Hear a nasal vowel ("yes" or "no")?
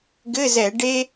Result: no